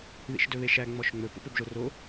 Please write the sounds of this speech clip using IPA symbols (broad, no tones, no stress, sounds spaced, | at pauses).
ð ḭ ʃ d ɵ β e ʃ æ ŋ͡m ɔ ʃ ŋ͡m ɵ p o̰ p ɵ b ʒ o r o